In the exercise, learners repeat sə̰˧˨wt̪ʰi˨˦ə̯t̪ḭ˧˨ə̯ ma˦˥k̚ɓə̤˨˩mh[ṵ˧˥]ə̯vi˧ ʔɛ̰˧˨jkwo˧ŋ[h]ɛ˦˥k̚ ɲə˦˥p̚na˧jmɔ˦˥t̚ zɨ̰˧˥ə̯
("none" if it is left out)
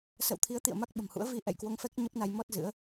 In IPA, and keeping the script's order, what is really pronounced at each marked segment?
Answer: ṵ˧˥, f

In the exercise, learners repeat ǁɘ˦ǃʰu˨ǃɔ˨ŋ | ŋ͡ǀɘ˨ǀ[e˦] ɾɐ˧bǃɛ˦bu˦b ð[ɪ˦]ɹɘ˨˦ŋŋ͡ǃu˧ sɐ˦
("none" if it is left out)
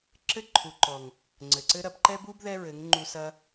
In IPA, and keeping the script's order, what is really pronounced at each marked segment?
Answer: ɘ˦, ɛ˦

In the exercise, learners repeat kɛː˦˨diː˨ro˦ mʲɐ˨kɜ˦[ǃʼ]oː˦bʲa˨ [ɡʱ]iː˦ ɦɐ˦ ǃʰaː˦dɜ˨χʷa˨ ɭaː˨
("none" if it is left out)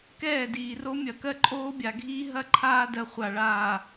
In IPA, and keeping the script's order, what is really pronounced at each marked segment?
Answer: ǃʼ, ɡʱ

